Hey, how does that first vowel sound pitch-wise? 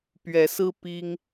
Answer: rising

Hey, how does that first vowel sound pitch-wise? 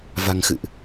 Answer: low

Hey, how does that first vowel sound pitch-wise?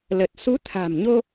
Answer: low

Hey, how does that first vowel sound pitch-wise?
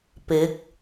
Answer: rising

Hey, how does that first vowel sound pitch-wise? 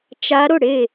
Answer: rising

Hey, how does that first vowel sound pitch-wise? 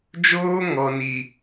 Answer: high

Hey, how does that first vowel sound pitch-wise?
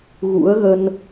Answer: rising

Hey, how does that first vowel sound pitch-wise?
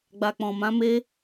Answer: low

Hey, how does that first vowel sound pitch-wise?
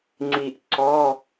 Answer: low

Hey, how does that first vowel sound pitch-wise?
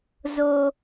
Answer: high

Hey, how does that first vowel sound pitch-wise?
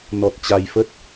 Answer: low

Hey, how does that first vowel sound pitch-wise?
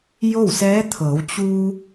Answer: falling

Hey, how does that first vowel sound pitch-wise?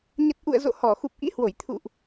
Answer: low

